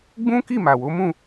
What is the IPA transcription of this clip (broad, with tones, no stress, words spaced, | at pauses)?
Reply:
ɡ͡bũ˦ki˦˨ma˨wo˨˦ mũ˦˨